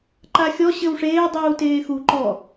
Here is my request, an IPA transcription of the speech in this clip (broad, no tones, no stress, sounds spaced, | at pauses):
ǃ a xʲ ɔ ɕ ɘ w ʂ eː dˤ uː t eː x u ǃ ɔ